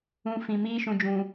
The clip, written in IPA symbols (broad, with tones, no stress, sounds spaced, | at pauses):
ũ˨ f ĩ˨ m iː˦ ʃ ũ˨ d͡ʒ ũ˨